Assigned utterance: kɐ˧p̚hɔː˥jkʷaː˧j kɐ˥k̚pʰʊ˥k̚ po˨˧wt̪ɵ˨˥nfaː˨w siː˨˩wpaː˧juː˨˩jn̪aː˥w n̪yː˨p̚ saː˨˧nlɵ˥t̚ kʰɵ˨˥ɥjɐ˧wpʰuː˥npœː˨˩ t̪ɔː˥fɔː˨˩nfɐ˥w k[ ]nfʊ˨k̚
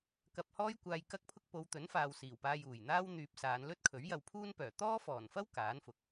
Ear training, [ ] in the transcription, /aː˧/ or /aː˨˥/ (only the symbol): aː˨˥